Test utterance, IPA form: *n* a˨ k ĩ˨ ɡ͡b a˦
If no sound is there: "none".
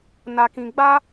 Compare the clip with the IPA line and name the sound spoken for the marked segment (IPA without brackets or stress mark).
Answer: n